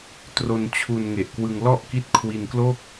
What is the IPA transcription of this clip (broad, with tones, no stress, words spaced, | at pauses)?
tro˧nt͡ɕʰu˧n ŋe˨˩ʔkwɯ˧ŋ lɔ˥˩ʔki˦˥t̚kʰwi˧nklo˥˩k̚